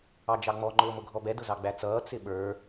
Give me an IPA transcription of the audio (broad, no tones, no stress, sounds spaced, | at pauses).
ɑ d͡ʒ ɑ ŋ͡m ɔ ŋ͡ǃ ʊː m ʊ ɡʱ ɔ b ɛ d ʊ z ɑ ɡ͡b æ t͡s ʌː t͡s ɪ ɓ ə˞